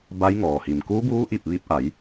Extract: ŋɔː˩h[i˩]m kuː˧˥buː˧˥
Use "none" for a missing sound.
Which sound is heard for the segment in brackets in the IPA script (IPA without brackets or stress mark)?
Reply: i˩